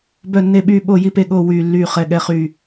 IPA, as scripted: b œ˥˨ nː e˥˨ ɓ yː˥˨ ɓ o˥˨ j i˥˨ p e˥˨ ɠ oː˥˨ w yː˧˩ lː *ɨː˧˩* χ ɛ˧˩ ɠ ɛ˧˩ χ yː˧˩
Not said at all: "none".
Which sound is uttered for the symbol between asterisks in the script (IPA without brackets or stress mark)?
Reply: yː˧˩